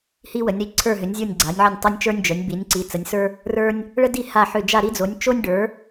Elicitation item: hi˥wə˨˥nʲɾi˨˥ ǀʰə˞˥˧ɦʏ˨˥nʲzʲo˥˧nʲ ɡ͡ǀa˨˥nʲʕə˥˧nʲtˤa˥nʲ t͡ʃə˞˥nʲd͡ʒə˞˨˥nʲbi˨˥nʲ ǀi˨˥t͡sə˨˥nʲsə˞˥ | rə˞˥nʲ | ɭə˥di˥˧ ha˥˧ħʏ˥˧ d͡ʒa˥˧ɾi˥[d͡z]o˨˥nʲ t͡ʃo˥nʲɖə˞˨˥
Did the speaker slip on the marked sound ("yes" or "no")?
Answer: no